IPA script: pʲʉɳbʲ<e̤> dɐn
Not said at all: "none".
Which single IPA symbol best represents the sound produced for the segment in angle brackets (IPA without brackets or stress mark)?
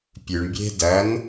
e̤